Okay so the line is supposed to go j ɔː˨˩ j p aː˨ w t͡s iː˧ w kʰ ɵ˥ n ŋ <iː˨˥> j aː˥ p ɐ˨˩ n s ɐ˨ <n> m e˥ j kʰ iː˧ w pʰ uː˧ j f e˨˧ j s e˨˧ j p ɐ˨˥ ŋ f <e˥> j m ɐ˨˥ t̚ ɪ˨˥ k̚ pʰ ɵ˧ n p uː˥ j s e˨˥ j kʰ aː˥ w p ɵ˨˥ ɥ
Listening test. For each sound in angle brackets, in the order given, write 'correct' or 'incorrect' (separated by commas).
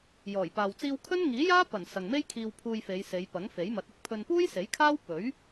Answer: correct, incorrect, incorrect